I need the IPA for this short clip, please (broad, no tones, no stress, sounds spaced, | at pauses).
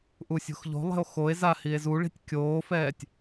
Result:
ʔ u sʲ o̤ x ʎ o̤ lˠ e̤ o̯ x o e̯ z a h i e̯ z u ɭ i̤ tʲ kʲ oː f ɛː tʲ